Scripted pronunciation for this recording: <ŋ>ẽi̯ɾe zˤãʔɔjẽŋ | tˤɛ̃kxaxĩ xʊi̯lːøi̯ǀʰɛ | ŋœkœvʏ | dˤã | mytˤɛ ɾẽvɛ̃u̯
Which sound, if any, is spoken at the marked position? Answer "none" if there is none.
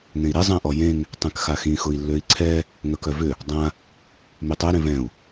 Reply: ŋ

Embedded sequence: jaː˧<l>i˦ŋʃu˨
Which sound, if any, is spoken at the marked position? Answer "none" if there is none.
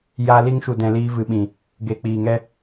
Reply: l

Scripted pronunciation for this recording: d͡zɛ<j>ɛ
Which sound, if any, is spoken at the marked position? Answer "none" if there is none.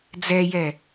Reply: j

